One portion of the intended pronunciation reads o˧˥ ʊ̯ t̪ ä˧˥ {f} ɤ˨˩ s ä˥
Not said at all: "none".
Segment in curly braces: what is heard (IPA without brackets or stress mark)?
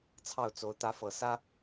f